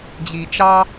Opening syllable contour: low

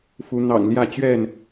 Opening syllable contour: rising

